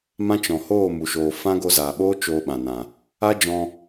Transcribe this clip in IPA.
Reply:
m ã˦ t͡ʃ ɔ̃˨ h oː˦˨ m u˨ ʃ oː˨ f ã˦ ɡ o˧ z aː˨ ɓ oː˦ t͡ʃ oː˧ ɓ ã˨ n ã˨ | a˦ d͡ʒ ɔ̃˧

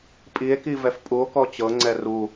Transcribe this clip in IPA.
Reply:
pʼ i e̯ k i v ɛ f pʼ u o̯ k ɔ t͡ɕ ɤ ŋ͡ǀ ɛ r u

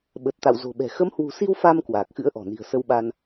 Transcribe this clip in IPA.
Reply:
ɓ ə˨˩ t̚ t̪ a̰˧˨ w z o̤˨˩ ɓ ɛ̤˨˩ x ə˨˦ m h w ṳ˨˩ s i˧ w f a˧ m k w aː˨˩ k̚ x ɨ̰˧˥ ə̯ ʔ ɔ̤˨˩ n i̤˨˩ ə̯ s ə˧ w ɓ a˧ n

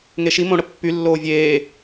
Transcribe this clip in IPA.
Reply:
ŋ e ʃ i m õ ɽ ə pː y lː oː vʲ eː

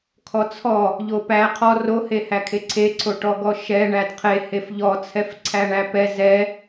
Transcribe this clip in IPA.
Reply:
kʰ ɔ t͡sʰ ɔ | ʎ o p æ qʰ ɔ r o h e h æ kʰ e ǀʰ e ǀʰ o ʈ ɔ ɡ ɔ ʃ ɛ ɳ æ d qʰ e h e f ʎ ɔ t͡sʰ ɛ f ǀʰ æ ɳ æ p ɛ z ɛ

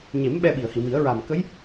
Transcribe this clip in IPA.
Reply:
ɲ e˨˩˦ m ɓ ɛ˧ ɓ i˨˩˨ ə̯ h i˨˩˨ m i˨˩˦ ə̯ ɹ a˨˩ m k ə˧˥ j

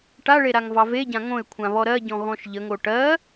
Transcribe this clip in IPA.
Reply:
ʈ a ɭ e ɾ a ŋ v ɑ v e ɟ ã ŋ õ ɪ̯ kʷʰ ã β ɔ ɾ ɜ ɟ ɔ̃ ɣ ɔ̃ ʃ ʎ ə ŋ o ʈ ɜ

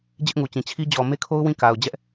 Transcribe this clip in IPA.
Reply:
d͡ʑ ɪ˦ ʔ ŋ u˨ t͡ɕ ĩ˨ t͡ɕʰ i˦ d͡ʑ ɔ˨ m e˦ kʰ o˦ ʊ̯ w ĩ˦˨ k a˨ ʊ̯ d͡ʑ ɛ˦ ʔ

